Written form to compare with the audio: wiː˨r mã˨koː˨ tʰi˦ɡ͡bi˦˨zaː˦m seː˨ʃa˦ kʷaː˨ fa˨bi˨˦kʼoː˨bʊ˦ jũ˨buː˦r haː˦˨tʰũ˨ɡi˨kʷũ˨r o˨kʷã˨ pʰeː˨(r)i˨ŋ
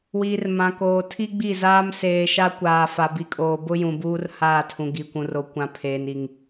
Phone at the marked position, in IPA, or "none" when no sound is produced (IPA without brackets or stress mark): n